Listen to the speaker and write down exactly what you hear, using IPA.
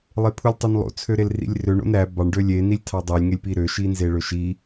lˠ e pʰ u lʲ tˤ o n lˠ o̰ t͡sʰ ø ɾ e l r ḭ lʲ r ø ɳ o̰ n ɾ æ b ɑ ɳ ɖ ø lʲ e n i lʲ tʰ ɑ dˤ e lʲ ŋ e lʲ p i ɾ ø ʃ i n z e ɭ ø ʃ i

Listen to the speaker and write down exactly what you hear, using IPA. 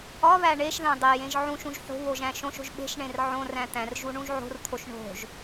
ɒ β æ ɳ e ʃ ð æ̃ dˤ e j ẽ ʒ ʕ ũ ʃ ũ ʒ ħ o̤ β o ʒ æ̃ ʃ õ ʃ o̤ ʒ ɓ e̤ ʃ ɳ ẽ r ʕ õ r æ̃ t̪ æ̃ r ʒ u ɳ ũ ʒ ʕ o̤ r t̪ʰ o ʃ ɳ o̤ ʒ

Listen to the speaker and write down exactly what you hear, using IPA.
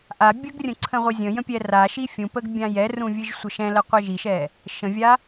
ʔ a bʲ ə ɡ rʲ ə̃ ǀʰ ə̃ ʁʷ ɨ zʲ ə̃ j ə̃ pʲ ɛ r a ʃ i fʲ ũ p ə ɡ bʲ ã j ɛ r ũ vʲ ɨ ʒ sʷ ə ʃ ɛ̃ l ə qʷ ɛ ʒ i ʃ ɛ | ʃ ə̃ vʲ a

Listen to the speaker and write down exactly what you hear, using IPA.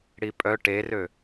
ɽ i pʼ œ ʈ e r ø

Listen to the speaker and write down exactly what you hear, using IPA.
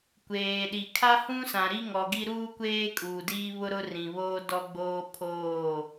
kʷ eː˨ ɗ i˨ kʰ a˦ h ũ˦ s ã˨ ɾ i˦ ŋ ɔ˨ ɡ i˦ ɾ uː˦ kʷ eː˦ kʼ uː˨ d iː˦ β ʊ˦ ɾ ʊ˦ r ĩ˨ β oː˦ d ɔ˦ ɡ͡b oː˦ pʰ oː˦˨

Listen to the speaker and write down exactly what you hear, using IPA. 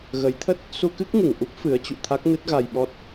ɣ ə˨˦ j t̪ʰ ə˦˥ t̚ | s u˧ k ɨ˦˥ k̚ ŋ ɨ˧˩ ŋ ʔ u˦˥ p̚ f ɨ˨˦ ə̯ t͡ɕ ṵ˧˨ t̪ʰ a˦˥ k̚ n ɨ˦˥ t̚ ɣ a˧ j ɓ ɔ˦˥ t̚

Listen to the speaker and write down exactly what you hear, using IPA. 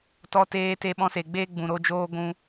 t ɔ˧ t eː˧ t e˧ ɓ ɔ̃˧ s e˨ ɡ͡b eː˦ ɡ͡b ũ˨ ɾ o˧ d͡ʒ oː˧ ɡʷ ũ˧

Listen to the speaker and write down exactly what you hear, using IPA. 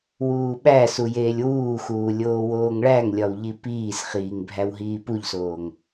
w uː ɓ æ s u j eː lʲ w uː x uː lʲ oː w oː ŋ ɭ æ ŋ lʲ ɒ w ʎ i p iː s χ iː ŋ bʱ æ w ɦ iː p u ʎ s oː ŋ

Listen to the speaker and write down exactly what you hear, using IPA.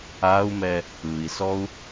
a u̯ m ɛ | ɯ i̯ s ɔ u̯

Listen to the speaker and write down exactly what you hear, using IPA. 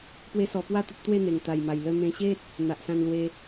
p w e˦ s ɔ˧ p w a˥˧ t̪ ə˦ t̚ t̪ w e˥˧ n̪ e˨˩ ŋ t̪ a˨˩ j m a˨˩ j l ə˧ n̪ ẽ˧ ɕ e˦ t̚ | n̪ a˨ ʔ s ã˧ n l w e˧

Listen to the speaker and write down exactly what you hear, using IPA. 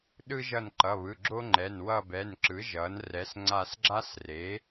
ɗ ɯ˥ ʒ ʌ˦˨ n ǃ ʌ˩˧˩ β ɯ˩˧˩ ɡ͡ǁ o˥ ŋ͡ǃ ɛ˩˧˩ n w ʌ˦˨ b ɛ˩˧˩ n ǁ ɯ˩˥ ʒ ʌ˩˥ n r ɛ˩˥ s ŋ͡ǀ a˦˨ s ɡ͡ǁ a˥ s r e˩˥

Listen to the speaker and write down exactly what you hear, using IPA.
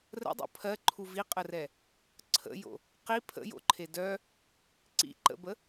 r ə̰ dˤ o̰ pʰ ɜ ǃʰ u v i qʼ ə r ɛ | ǀʰ ə̰ j o̰ | q i pʰ ə̰ j o̰ ǃʰ e d œ | ǀ ḭ ǃ ə̰ b ə

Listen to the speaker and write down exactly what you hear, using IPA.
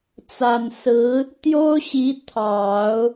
t͡s a˨˩ n s ɹ̩˧˥ | t̪ j o˥ ʊ̯ ɕ i˧˥ t̪ʰ ɑ˨˩˦ ʊ̯

